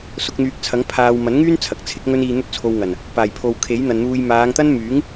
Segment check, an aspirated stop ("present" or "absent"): present